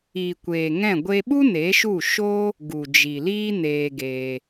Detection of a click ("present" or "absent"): absent